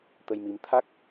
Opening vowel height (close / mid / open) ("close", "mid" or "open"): mid